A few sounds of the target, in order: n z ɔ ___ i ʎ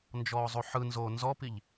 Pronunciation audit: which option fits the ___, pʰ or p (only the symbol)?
p